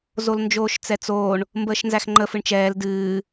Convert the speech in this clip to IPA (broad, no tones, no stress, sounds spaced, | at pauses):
z o l n d͡ʒ oː ʃ t͡s ɛ t͡s oː ɳ | m b əː ʃ n z æ x ŋ͡ǃ ə f ɨ ɳ t͡ʃ ɛː l d ɨː